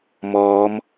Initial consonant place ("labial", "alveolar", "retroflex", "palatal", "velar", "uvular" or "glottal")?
labial